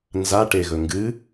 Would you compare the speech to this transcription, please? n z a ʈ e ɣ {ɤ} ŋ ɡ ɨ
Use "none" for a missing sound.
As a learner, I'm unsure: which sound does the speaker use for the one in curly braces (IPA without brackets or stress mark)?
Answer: ɵ